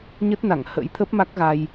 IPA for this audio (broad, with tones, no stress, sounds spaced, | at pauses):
ɲ ə˦˥ t̚ n a˧˩ ŋ h ə̰˧˥ j t̪ʰ ə˦˥ p̚ m a˦˥ k̚ ɣ a˧ j